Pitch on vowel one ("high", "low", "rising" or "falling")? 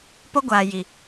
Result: high